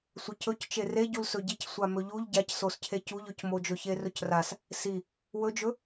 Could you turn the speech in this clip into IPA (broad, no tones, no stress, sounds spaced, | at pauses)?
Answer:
sʷ ə c ɵ c t͡ʃ e r e ɟ u l s ɵ ɟ i c sʷ a m ɵ ʎ u ʎ ɟ a c s o s cʰ e c u ʎ ɵ c m o d͡ʒ ɵ ç e r ɵ c r a s | s i | w ɵ d͡ʒ ɵ